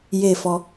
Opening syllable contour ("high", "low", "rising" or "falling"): falling